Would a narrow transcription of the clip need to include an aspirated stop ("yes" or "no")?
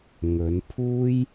yes